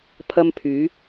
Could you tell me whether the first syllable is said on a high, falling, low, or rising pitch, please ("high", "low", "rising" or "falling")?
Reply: high